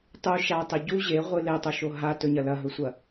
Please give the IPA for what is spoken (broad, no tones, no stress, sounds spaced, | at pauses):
tˤ u ʃ a tˤ e ɟ u ʑ e ʁʷ ɨ l e tˤ o ʃ o ɦ a t ɵ ɲ ɐ l ɐ ɦ ɵ sʷ ɐ